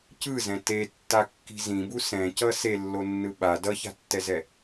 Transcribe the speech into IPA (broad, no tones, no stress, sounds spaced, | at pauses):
c ɯ z ɛ̃ t e tː a kː i̤ z ĩ b u s ɛ̃ c ʌ s e lː o nː ɯ ɓ a d ʌ ç a̤ tː ɛ z ɛ